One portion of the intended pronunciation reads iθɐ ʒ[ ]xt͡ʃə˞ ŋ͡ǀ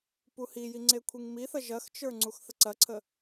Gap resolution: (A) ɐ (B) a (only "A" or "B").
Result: A